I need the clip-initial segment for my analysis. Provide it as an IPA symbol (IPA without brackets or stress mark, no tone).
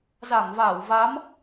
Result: z